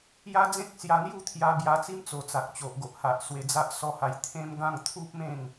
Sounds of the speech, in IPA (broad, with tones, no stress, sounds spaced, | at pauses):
j a˦ d͡z ẽ˦ k̚ s j a˧ n̪ j u˥˧ t̪ʰ j a˧ b j a˧ t͡s i˦ m t͡s o˨˩ t͡s a˨ k̚ t͡ɕ o˨ ʔ ɡ o˨ ʔ h a˨ ʔ s w e˧ d͡z a˦ ʔ s ɔ˦ h a˧ j t̪ʰ ẽ˦ m ɡ ã˥˧ ŋ t̪ʰ u˦ p̚ m ẽ˥˧ ŋ